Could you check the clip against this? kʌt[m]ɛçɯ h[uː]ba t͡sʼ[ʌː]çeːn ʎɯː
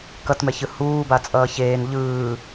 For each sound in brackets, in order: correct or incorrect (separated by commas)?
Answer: correct, correct, correct